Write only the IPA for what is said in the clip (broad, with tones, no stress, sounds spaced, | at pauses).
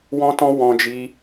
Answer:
w ɔ̃˦ t ɔ̃˦ w ɔ̃˧ d͡ʒ i˧